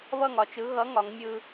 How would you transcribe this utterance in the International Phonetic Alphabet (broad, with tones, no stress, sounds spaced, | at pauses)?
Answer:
β ʌ˥˨ ŋ ɒ˩˧ t͡ʃ ɯ˨˥ ɣ ʌ˨˥ ŋ ɒ˩˧ ŋ mʲ ɯ˧